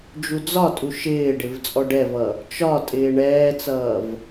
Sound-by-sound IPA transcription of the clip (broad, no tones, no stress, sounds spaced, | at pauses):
d͡ʒ u d͡z ɒ tʼ u ʃ ɪː ɖ ɪ v t͡sʼ ɔ ɖ ɛ v ʌ | t͡ʃ ɒ tʼ ɪː ɳ ɛː t͡s ʌː v